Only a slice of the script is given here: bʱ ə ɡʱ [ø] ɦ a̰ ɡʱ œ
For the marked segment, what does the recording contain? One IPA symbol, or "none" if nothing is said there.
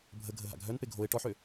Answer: ə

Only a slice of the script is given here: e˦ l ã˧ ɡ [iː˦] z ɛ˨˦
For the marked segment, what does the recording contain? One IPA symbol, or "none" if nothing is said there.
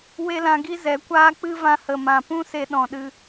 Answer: i˦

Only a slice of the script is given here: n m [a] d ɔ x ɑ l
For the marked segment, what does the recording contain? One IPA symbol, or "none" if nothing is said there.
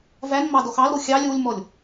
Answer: ɑ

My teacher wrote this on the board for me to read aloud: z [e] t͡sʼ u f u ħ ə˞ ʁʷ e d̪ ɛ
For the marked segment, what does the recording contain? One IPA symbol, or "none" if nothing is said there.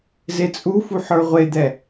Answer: e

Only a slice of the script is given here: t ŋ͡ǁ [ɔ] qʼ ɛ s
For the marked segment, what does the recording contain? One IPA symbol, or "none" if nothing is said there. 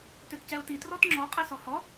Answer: ɔ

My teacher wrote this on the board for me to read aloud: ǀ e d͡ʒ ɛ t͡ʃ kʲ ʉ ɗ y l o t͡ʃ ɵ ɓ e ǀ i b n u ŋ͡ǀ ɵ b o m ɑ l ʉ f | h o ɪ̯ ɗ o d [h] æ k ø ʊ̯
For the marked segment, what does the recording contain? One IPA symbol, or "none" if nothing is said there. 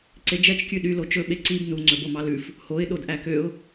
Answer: ʔ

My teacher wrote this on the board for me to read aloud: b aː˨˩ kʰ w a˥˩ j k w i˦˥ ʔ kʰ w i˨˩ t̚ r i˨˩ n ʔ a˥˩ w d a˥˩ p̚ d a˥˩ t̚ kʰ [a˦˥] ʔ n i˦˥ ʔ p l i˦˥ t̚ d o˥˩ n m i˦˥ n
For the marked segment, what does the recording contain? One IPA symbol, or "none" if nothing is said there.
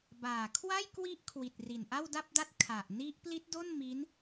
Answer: a˨˩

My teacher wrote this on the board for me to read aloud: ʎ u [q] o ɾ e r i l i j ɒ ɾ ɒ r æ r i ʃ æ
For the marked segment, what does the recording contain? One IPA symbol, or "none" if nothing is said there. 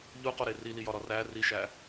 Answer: q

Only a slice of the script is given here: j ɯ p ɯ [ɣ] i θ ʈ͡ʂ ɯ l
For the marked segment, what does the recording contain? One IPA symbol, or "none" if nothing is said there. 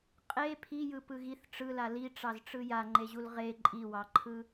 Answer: ɣ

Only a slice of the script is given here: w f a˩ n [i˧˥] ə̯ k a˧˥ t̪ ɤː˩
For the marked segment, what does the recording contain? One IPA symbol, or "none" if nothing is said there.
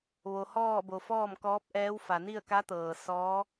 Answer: i˥˨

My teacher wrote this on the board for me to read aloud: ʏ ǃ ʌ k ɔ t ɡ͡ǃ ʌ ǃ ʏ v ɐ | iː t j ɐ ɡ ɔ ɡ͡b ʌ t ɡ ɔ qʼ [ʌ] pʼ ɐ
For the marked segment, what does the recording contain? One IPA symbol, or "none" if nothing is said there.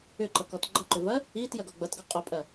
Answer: ɔ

